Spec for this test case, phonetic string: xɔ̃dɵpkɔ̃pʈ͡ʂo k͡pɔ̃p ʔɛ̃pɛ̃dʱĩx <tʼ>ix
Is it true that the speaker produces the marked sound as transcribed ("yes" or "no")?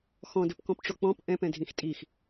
yes